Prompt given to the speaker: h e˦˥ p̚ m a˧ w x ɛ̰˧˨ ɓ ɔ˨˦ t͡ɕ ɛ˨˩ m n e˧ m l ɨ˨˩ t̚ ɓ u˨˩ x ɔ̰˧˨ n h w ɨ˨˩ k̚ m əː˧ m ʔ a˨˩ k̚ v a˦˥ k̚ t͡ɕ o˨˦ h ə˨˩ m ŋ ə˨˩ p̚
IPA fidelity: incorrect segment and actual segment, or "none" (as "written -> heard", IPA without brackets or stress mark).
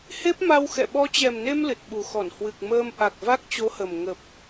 ɔ̰˧˨ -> ɔ˧˩